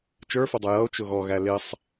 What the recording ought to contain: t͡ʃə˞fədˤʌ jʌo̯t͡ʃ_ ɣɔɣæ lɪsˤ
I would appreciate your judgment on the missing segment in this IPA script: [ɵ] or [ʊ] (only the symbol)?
ʊ